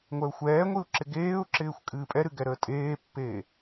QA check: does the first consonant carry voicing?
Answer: yes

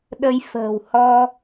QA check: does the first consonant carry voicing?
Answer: yes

